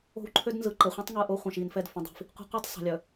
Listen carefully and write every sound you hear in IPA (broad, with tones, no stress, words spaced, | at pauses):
o̤˦wǃʰø˦dnzɯ˨ ǃɛ˨χʷɛ̃˦tˤŋɯ˨ ʔo˦χʷə̃ː˨ʃiː˨nfɛ˦˨d fə̃˨dˤi̤˨f | qʷɛ̤˦qʷɯ˦tˤ sˤə̤˨lʲœ˨